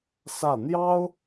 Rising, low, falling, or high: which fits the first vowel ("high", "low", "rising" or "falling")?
falling